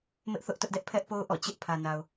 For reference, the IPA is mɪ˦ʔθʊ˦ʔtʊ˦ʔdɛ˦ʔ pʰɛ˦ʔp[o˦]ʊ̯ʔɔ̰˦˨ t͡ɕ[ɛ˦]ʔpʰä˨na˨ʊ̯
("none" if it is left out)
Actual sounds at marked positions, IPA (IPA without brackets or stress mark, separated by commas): o˦, ɪ˦